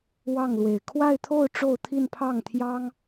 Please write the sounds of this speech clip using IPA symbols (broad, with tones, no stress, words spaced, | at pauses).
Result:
wɑ˥˩ŋlwe˨˩ɪ̯ kʰwa˥˧ɪ̯t̪ʰo˥˧ʊ̯ ʈ͡ʂo˥˧ʊ̯t̪ʰi˥˧n pʰɑ˥˩ŋt̪ʰjɑ˥ŋ